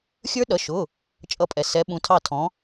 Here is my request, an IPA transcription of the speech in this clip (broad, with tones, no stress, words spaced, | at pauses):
xʲə˞˦˥ɗʌ˩˧˩ʃʊ˩˧˩ | t͡ʃʼʌ˧˩pʼɛ˩ sɛ˩˧ɓũ˩˧ tʰɑ˧˩tʰɔ̃˩˧